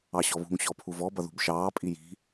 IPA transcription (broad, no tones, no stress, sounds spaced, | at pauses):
ɑ ɕ ɔ β ṳ ŋ ɕ ɔ pʰ u v ɔ b ʌ ð ṳ b ʃ ɑː pʼ i j i̤